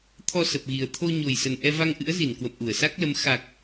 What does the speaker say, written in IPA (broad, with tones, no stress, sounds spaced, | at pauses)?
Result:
t̪ʰ ɔ˧ s ə˨˩ p̚ ɣ i˨˩ ə̯ t̪ʰ o˧ ɲ o˨˩ j s ə˨˩ n ʔ ɛ˧ v a˧ ŋ ʔ ɨ̰˧˥ ə̯ z i˧˩ n k w ə̰˧˨ m ʔ u˧˩ ə̯ s a˦˥ k̚ l ə˨˦ m x a˨˩ k̚